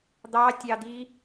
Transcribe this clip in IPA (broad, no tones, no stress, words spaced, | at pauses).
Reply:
d̪ɑtʲɑd̪i